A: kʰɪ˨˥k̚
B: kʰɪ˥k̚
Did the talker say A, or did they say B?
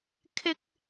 B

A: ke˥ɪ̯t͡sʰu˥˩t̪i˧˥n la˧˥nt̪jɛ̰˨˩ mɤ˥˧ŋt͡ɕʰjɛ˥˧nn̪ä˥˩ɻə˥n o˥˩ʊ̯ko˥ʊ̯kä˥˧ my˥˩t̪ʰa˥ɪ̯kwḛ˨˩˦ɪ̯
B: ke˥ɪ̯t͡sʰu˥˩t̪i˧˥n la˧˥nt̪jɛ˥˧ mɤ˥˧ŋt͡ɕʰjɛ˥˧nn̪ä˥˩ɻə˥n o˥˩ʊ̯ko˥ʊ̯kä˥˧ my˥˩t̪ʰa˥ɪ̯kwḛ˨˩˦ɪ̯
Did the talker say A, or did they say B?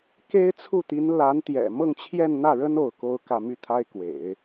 A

